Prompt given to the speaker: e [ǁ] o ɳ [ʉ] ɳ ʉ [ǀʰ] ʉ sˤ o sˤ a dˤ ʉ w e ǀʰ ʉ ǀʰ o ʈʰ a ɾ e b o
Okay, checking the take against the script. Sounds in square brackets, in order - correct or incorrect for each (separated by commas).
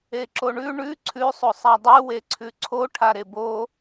correct, correct, correct